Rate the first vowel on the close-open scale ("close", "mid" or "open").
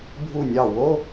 close